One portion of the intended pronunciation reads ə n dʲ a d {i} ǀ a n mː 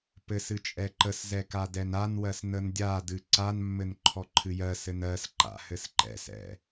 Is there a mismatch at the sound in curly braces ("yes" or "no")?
yes